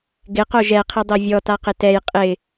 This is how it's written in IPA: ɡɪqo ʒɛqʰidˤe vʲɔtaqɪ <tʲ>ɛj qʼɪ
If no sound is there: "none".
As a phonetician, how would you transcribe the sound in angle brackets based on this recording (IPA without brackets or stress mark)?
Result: t